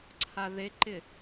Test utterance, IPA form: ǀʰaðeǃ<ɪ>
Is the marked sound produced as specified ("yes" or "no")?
yes